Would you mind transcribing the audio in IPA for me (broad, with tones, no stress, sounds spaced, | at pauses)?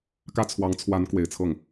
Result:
k ä˥˩ t͡sʰ w ɑ˧˥ ŋ t͡sʰ w a˧˥ n k w e˨˩ ɪ̯ t͡sʰ ɤ˥˩ ŋ